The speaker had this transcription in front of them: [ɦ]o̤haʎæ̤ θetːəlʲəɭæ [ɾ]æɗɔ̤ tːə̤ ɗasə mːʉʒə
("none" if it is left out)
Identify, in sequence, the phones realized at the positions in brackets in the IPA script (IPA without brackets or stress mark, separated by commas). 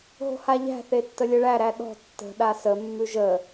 ɦ, ɾ